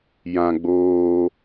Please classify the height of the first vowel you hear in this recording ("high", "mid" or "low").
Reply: low